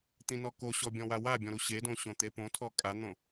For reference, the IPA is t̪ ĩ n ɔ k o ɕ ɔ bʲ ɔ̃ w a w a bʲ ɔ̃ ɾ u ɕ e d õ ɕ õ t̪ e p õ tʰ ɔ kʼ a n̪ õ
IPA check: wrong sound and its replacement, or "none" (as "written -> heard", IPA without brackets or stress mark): none